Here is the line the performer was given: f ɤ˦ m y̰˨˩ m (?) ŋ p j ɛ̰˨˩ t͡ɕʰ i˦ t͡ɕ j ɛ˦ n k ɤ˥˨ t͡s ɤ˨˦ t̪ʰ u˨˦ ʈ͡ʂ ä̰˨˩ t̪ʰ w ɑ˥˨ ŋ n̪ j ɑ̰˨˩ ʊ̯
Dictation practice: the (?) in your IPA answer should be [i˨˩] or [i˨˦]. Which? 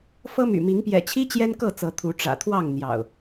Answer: i˨˦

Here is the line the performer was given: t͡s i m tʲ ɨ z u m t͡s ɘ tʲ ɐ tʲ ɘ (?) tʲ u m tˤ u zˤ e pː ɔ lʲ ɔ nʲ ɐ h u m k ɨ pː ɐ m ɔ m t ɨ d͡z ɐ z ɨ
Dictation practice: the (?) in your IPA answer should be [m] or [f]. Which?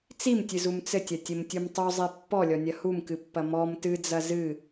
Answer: m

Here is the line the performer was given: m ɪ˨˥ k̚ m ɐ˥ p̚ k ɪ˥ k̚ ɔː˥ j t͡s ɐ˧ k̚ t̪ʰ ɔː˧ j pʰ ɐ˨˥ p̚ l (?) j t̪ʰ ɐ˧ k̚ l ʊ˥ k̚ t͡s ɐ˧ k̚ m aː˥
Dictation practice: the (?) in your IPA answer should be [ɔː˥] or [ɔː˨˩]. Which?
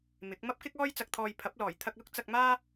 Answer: ɔː˨˩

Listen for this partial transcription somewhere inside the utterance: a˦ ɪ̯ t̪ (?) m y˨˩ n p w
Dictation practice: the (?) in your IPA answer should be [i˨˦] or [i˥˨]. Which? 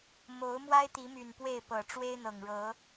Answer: i˨˦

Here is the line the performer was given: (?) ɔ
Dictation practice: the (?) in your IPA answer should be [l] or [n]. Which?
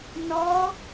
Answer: n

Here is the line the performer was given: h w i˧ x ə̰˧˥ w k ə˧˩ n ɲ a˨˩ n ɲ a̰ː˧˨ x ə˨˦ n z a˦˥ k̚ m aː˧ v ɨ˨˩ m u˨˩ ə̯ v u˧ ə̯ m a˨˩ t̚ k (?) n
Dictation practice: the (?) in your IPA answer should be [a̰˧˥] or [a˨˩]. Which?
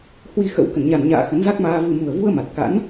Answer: a̰˧˥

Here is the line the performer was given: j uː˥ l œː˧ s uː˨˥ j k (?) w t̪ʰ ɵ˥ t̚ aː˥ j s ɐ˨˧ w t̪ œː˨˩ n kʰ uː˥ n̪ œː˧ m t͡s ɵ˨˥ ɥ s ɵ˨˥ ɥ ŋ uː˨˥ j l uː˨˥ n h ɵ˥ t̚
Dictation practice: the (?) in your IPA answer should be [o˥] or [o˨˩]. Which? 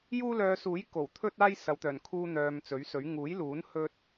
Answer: o˨˩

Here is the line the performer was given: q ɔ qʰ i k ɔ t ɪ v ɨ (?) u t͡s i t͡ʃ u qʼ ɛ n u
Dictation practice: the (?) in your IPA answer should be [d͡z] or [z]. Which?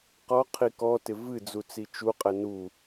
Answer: d͡z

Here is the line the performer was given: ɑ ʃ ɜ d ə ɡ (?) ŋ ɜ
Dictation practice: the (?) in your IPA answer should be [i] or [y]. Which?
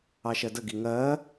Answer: i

